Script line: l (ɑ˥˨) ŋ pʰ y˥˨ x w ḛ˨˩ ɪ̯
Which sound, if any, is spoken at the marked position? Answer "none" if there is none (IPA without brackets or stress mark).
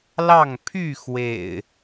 ɑ˥˨